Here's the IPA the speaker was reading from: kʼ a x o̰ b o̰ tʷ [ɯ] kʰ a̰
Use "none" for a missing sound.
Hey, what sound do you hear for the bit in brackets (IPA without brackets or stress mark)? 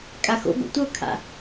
ɤ